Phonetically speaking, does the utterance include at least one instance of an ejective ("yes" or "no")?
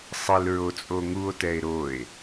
yes